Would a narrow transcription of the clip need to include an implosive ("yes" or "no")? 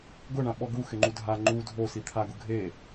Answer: yes